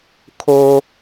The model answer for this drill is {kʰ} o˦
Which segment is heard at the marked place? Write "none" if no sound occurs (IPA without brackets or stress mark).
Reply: kʰ